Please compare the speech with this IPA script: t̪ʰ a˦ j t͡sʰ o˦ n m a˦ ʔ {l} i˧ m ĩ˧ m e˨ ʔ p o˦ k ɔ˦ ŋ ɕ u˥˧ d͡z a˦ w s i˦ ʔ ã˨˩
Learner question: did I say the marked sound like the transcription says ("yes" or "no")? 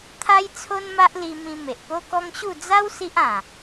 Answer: yes